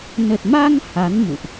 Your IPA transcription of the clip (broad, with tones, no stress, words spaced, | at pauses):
nə˨˩t̚ma˧ŋ ha˨˦nmṵ˧˨ʔ